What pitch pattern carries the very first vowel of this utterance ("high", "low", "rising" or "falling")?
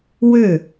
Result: falling